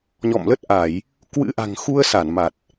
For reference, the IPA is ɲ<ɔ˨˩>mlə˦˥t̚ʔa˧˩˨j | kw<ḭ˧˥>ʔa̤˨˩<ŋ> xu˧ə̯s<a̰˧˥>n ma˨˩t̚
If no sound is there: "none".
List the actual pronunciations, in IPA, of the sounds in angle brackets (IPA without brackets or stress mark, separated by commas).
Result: ɔ̰˧˨, ɨ̰˧˥, ŋ, a˧˩